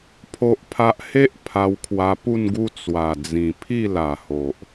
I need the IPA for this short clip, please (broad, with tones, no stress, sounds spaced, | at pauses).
pʰ o˦ ʔ pʰ a˦ ʔ h e˦ ʔ pʰ a˧ w kʰ w a˧ p u˥˧ n ɡ u˦ t͡s w a˨˩ d͡z ĩ˨˩ pʰ i˥˧ l a˨˩ h o˨ ʔ